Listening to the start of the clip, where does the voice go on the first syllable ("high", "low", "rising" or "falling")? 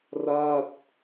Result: falling